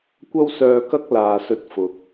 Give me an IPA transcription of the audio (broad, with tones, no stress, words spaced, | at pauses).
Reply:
kʷɐ˥wsœː˧kɐ˥k̚ laː˨sɵ˧t̚fʊ˨k̚